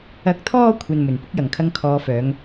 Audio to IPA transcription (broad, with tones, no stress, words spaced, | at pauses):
ɐ˨˥k̚t̪ʰɔː˧ kʷʰɐ˨n mɵ˨˩n pʊ˥k̚jɐ˨˩ŋkʰɐ˧ŋ kʰɔː˨˧fœː˨˧ŋ